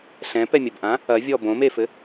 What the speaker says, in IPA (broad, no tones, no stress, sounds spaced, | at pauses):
ɬ ɛ̃ p ɛ mʲ ɐ b ʔ ã | ɐ vʲ ɔ b õ m e f ɘ